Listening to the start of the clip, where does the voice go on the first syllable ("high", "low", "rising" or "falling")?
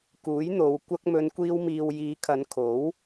rising